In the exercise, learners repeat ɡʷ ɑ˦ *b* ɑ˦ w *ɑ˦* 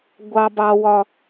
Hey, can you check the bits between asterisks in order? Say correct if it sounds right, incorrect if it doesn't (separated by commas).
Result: correct, incorrect